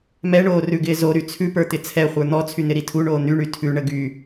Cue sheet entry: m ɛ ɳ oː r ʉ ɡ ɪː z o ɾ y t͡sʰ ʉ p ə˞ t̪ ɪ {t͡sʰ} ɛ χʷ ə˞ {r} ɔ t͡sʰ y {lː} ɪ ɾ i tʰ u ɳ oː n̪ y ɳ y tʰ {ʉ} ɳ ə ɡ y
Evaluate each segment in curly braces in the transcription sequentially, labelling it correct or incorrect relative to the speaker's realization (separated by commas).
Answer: correct, incorrect, incorrect, correct